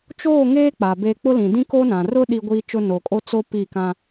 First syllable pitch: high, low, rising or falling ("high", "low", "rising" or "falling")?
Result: falling